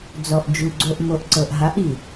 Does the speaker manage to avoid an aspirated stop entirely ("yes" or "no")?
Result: yes